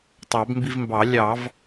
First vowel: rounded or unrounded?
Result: unrounded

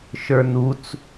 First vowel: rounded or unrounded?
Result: unrounded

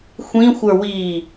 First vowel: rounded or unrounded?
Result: unrounded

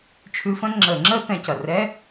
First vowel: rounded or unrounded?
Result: rounded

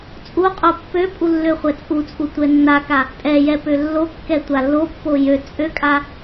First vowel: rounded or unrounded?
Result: rounded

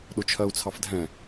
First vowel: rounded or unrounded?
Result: rounded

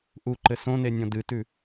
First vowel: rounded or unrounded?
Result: rounded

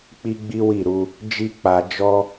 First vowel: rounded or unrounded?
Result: unrounded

